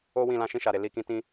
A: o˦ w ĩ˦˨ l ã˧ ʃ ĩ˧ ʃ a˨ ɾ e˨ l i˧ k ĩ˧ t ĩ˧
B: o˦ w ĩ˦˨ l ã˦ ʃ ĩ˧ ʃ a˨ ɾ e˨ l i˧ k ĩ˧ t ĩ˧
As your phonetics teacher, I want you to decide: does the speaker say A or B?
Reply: A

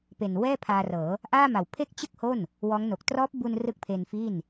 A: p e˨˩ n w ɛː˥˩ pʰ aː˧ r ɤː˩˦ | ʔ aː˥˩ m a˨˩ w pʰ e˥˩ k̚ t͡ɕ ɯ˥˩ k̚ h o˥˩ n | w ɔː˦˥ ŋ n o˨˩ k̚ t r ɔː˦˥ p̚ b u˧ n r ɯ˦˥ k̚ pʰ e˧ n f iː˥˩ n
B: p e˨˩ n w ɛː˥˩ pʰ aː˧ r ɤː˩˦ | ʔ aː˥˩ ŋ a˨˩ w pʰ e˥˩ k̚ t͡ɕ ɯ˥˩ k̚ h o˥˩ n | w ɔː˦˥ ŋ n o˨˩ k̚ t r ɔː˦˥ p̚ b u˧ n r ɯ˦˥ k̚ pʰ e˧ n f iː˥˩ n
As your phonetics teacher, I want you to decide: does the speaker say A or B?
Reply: A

